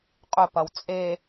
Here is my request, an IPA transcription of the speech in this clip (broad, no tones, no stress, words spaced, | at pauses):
qʼɵpɐw t͡sʼe